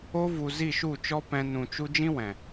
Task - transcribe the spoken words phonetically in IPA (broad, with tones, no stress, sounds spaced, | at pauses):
o˧ v u˨ z i˦˨ ʃ u˦˨ t͡ʃ ɔ˦ p ɛ̃˧ n ũ˨ t͡ʃ u˧ d͡ʒ ĩ˦ w ɛ̃˨